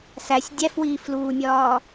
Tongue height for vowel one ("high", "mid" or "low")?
low